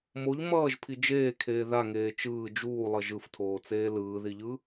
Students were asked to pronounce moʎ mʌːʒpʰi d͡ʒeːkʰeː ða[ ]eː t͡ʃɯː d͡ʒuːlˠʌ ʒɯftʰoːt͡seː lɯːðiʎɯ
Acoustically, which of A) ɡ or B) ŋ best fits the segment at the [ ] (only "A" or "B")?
B